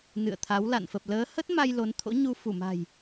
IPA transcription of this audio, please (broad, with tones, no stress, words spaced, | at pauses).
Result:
nɨ̰˧˨ə̯t̪ʰa˨˦wla̰˧˨n fə˨˩p̚ ləː˨˦ hə˦˥t̚ma˧j lo˨˦nt̪ʰo̰˧˥ɲu˧ fu˧˩ma̤˨˩j